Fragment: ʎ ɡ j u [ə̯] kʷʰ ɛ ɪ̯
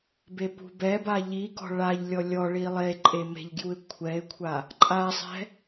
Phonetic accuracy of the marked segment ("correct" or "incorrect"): incorrect